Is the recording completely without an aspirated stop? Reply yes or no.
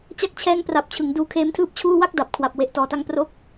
no